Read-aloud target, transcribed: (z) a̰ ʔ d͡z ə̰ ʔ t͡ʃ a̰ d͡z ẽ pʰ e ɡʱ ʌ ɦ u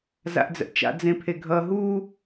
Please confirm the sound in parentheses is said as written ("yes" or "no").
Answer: yes